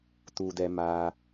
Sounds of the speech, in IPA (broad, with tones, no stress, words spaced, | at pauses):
tu˧dɛ˧ maː˧